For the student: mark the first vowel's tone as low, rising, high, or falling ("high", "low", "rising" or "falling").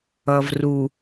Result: low